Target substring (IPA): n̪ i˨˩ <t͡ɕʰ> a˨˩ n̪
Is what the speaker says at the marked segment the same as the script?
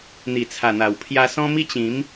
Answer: no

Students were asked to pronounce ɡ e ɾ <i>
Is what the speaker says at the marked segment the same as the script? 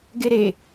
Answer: no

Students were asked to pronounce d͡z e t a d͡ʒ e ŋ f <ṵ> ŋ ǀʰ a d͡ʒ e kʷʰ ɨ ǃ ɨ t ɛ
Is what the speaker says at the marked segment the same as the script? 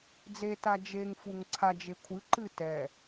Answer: no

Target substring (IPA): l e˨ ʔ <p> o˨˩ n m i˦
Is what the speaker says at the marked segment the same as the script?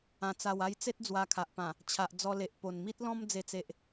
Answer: yes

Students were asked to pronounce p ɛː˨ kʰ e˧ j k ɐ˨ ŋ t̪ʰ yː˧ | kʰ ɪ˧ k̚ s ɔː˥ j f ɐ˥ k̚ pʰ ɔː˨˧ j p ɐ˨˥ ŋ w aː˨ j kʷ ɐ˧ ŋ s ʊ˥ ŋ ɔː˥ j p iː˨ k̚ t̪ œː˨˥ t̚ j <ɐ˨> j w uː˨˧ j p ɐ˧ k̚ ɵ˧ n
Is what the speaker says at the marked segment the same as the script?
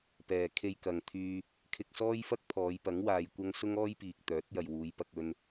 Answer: yes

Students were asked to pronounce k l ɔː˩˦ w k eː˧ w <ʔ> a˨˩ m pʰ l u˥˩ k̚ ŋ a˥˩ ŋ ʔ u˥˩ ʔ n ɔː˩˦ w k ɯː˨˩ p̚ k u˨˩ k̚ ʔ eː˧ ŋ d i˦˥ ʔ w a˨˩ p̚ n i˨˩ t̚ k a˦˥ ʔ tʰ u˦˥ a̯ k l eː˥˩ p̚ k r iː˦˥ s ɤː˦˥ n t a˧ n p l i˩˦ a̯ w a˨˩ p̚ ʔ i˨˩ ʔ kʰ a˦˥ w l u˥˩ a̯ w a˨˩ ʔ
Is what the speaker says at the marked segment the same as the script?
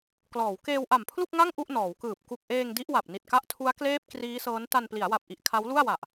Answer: yes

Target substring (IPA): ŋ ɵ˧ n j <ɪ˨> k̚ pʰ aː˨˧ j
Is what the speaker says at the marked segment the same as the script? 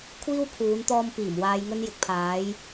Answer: yes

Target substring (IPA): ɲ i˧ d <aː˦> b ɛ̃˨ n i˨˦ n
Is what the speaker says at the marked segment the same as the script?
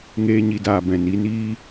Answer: no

